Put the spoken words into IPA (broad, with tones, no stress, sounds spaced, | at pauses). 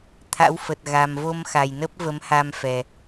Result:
t̪ʰ a̰˧˥ w f ə˨˩ t̚ ɣ a˨˩ m v o˧ m x a˨˩ j n ə˦˥ p̚ v ə˨˦ m h a˧ m f ɛ˨˩